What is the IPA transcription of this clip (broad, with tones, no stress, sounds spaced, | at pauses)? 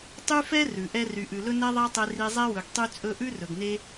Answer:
tˤ y˦ f ɛ˦ r ʉ˨ ʔ ɛ˦ r y˨ ʔ ʉ˨ l ɵ˦ n ɛ˦ ðˤ æ˦ tˤ e˧ r i˧ zˤ ɛ˦ w ɵ˨ ɡ tˤ y˧ t͡sʼ ɵ˧ ʔ ʉ˦ r ɵ˨ ɡ n e˦